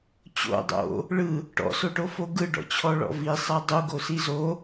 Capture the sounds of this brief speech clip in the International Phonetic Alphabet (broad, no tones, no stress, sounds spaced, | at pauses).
t͡ɕ o̰ dˤ o̰ | ɭ ɯ | ʈ ɔ̰ s o ʈ o f o ɡ ɯ ɖ ɔ̰ t͡ɕʰ ɔ ɭ ɔ̰ v i sˤ a dˤ u ɡ o s i z o